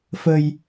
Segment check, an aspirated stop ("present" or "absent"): absent